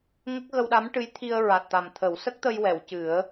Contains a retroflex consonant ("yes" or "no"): yes